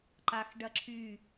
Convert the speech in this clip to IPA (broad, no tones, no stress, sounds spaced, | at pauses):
ǃ a x ɖ ɐ ǁʰ y